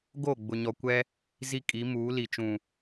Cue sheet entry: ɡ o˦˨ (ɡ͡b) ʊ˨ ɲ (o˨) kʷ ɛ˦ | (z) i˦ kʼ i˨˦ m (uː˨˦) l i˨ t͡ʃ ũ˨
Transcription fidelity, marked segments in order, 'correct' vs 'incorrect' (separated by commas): correct, incorrect, correct, correct